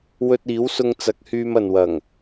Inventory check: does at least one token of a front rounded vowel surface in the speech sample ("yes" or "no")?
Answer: yes